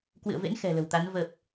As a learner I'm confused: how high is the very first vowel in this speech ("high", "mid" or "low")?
high